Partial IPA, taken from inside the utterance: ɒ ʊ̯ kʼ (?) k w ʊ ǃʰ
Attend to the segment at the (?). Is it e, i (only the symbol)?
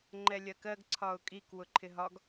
i